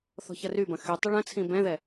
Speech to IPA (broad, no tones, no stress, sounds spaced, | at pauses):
θ ɔ̤ ç ɐ r y b ɐ̃ x y tˤ ɪ ɭ ɐ̃ t͡sʰ ĩ b ɛ̃ ð ɛ